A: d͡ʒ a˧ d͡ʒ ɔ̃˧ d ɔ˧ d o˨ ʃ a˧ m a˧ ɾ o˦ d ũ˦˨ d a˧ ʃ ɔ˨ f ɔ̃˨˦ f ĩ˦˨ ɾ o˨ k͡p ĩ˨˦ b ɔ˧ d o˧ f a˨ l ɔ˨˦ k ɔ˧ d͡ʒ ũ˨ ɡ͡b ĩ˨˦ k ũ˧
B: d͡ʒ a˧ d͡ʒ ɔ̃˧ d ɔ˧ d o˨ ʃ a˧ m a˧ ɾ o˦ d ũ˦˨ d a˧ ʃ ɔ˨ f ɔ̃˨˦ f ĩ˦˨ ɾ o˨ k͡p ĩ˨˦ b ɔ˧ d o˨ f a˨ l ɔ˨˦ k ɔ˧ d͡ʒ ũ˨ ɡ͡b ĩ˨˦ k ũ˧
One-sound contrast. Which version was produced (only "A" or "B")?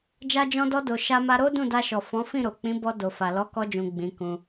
B